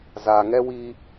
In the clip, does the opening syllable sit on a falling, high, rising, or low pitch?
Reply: low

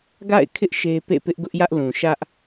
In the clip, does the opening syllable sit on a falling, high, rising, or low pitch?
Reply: falling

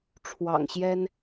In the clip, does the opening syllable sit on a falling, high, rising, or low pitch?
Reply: low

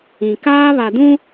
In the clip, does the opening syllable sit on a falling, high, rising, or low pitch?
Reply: low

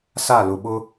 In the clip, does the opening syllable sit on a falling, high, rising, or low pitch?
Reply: falling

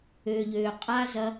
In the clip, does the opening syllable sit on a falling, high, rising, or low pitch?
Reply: low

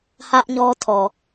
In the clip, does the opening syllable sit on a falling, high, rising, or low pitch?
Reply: high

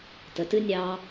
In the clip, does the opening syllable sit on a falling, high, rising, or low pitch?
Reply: low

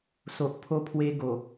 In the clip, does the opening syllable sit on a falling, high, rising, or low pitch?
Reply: low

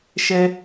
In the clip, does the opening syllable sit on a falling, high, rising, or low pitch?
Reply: high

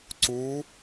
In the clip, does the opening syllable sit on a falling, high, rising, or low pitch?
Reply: rising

